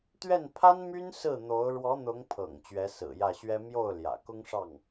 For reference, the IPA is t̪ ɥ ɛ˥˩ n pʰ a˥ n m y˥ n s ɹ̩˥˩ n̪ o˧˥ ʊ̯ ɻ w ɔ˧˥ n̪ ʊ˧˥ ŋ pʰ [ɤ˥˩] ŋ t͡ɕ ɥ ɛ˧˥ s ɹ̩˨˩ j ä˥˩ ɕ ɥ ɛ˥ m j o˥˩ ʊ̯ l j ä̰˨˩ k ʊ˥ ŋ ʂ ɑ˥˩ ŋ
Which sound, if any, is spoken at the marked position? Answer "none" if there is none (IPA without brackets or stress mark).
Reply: ɤ̰˨˩